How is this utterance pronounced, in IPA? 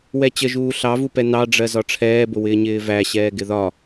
w ɛ t͡ɕ ə ʒ uː ɬ ɑ v u p ɛ n ɑ ɖ͡ʐ ɜ z ɒ ʈ͡ʂʰ ɛː b ʊ w ɪː ɲ ɪː v æ ɕ ɛː ɡ ɪ ð ɒ

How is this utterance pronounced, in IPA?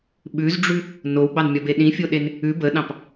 ɓ ʉ z ɖ͡ʐ ʉ | n o w ɡ͡b ɑ n mʲ ɒ b e ɗ ĩ fʲ o ɗ e n | ʉ b ə ɗ ɑ̃ p

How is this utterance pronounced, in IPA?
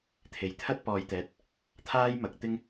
t̪ʰ e˨˩ j t̪ʰ ɐ˥ t̚ p ɔː˨ j t̪ ɛː˨˥ t̚ | t̪ʰ aː˥ j m ɐ˨ k̚ t̪ ɪ˥ ŋ

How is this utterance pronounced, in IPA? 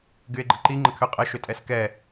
ɡ y e̯ ɡ͡ǃ ə ǃ i ŋ͡ǃ ə kʰ ʏ qʼ ə ʃ ʏ tʼ ɛ s k ɛ

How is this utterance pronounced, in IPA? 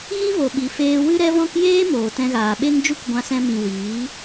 ɣ i˦ v o˨ ɓ i˨ f eː˧ w ɨ˦ ɾ ɛ˦ v ɔ̃˦ k j eː˦ m oː˨ t ɛ̃˧ ɣ aː˨ ɓ e˦ ŋ d͡ʒ u˦ k ɡʷ ã˧ s ɛ̃˧ m ĩ˨ w iː˨˦

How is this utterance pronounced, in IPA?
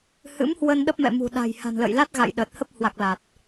h ɨ̰˧˥ m h w ə˧ n ɗ ə˦˥ p̚ m ɛ̰˧˨ m ṳ˨˩ ɗ a̤˨˩ j h a̤˨˩ n l ə̰˧˨ j l a˦˥ t̚ ɣ a̰˧˨ j ɗ ə˨˩ t̚ h ə˦˥ p̚ h w a˨˩ k̚ l a˨˩ t̚

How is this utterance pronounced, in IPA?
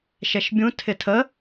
ʃ ɛ ʃ bʲ ũ tʰ ɪ tʰ ə

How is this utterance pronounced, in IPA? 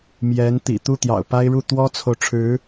m j ɛ˧˥ n t̪ ḭ˨˩ t̪ u˥˩ t̪ j ɑ̰˨˩ ʊ̯ p a˥ ɪ̯ ɻ u˥˩ t̪ w ɔ˥ t͡sʰ o˨ ʊ̯ ʈ͡ʂʰ ɻ̩˧˥

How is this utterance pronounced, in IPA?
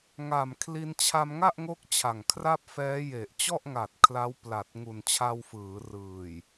ŋ a˨˩ m kʰ l i˧ n t͡ɕʰ a˧ m ŋ a˥˩ ʔ ŋ o˦˥ k̚ t͡ɕʰ a˨˩ ŋ kʰ r a˥˩ p̚ f ɛː˦˥ j e˨˩ ʔ t͡ɕ ɔ˥˩ ʔ ŋ a˨˩ t̚ kʰ l a˦˥ w p l a˨˩ t̚ ŋ u˨˩ n t͡ɕʰ a˧ w f ɯː˩˦ r ɯː˨˩ j

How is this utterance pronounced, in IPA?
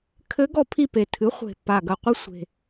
kʰ ɘ˧˥ ɡ ɔ˦˨ pʰ i˦˨ p e˨˩ tʰ ɨ˩˥ χʷ e̤˨˩ pː a˨˩ ɡ ɐ˨˩ qʷ i˧˥ sʷ e̤˨˩

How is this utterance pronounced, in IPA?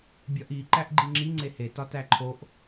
bʲ ɒ ʔ i ǃ æ ʔ ɡ͡ǃ i ŋ͡ǁ i ŋ͡ǀ e h e t ɒ t æ ǃʰ o ʔ

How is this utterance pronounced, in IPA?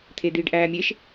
t̪ʰ e d̪ iː ɖ ʔ æː mʲ e ʃ

